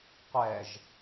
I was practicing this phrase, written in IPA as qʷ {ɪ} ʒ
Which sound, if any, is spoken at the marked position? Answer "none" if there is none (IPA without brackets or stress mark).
ɛ